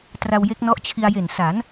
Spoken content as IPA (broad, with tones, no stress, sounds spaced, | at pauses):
t r a˧ w j e˦˥ k̚ n ɔ˦˥ ʔ t͡ɕʰ i˧ a̯ j e˨˩ n s a˩˦ n